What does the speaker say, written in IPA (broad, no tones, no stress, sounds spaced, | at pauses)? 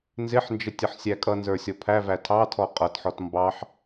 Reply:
n z ɪ ħ n d͡ʒ ə tʲ ʌ ħ sʲ æ kʼ ʌ n z ə˞ sʲ ɔ pʰ æ v æ tʰ ɑ tʰ ɔ qʼ ʌ t ħ ɔ t m b ɑ ħ